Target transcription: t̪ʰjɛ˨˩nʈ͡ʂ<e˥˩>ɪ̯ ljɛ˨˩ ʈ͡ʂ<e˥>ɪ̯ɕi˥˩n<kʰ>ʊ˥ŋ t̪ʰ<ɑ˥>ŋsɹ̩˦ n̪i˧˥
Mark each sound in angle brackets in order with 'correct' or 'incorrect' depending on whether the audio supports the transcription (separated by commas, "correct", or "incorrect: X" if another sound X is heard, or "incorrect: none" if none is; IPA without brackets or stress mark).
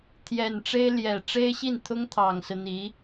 incorrect: e˥, correct, incorrect: t̪ʰ, incorrect: ɑ˨˩